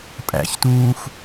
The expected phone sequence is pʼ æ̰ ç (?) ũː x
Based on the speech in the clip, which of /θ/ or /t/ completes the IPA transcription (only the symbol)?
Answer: t